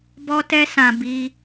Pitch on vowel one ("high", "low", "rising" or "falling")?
high